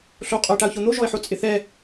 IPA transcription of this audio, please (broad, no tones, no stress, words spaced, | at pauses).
ɬo qʼoɪ̯ʈaʊ̯çon̪o ʒɔɪ̯ħot͡sʼɪθɛ